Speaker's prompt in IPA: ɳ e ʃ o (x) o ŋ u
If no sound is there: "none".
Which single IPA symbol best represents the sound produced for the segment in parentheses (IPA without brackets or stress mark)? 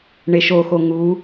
x